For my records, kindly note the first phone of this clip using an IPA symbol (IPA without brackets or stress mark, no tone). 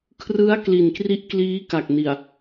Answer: kʰ